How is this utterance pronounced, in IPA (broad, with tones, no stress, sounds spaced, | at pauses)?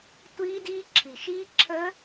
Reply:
tʷ iː˦˥ d iː˦˥ ǁʰ i˨˩ ʃ iː˦˥ ǁʰ əː˦˥